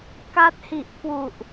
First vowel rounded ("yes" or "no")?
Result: no